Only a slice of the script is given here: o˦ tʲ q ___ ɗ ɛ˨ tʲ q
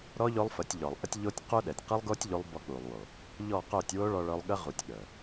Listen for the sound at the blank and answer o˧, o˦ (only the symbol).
o˦